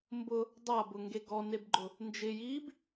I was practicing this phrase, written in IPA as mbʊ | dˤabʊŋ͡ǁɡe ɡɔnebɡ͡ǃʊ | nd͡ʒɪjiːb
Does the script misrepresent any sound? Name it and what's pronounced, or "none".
ŋ͡ǁ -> ŋ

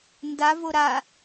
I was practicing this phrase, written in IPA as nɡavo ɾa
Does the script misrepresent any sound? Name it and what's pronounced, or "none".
ɡ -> d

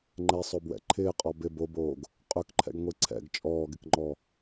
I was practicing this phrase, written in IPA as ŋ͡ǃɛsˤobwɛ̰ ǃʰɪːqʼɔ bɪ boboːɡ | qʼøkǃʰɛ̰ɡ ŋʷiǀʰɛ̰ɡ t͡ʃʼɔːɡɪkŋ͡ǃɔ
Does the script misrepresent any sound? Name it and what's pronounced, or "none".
none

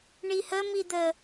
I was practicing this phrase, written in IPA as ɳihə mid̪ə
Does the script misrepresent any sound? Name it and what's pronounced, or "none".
none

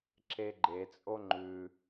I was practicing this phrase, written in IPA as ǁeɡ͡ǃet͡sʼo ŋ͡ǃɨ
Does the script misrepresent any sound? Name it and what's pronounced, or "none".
ɨ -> ʉ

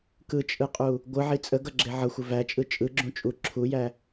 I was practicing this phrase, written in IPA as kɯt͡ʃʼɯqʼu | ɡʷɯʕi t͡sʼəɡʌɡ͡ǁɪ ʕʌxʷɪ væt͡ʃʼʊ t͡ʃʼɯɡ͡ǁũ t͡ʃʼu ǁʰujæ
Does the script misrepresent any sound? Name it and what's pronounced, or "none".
ʊ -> ɯ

